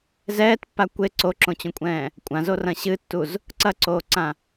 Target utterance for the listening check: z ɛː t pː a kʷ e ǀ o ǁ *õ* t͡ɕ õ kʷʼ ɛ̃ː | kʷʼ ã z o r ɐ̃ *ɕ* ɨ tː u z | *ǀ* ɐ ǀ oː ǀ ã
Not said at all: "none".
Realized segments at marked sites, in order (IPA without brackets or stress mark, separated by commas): õ, ɕ, ǀ